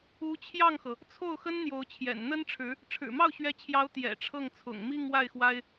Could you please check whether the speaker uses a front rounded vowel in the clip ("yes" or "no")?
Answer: no